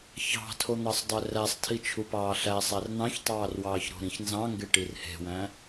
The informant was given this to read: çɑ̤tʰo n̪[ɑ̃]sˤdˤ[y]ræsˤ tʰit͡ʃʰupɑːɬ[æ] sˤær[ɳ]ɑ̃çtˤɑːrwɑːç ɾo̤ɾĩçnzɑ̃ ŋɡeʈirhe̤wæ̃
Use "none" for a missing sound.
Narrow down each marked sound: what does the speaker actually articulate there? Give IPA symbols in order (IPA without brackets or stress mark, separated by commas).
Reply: ɑ, ø, æ, n̪